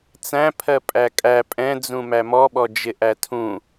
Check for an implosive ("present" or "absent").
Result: present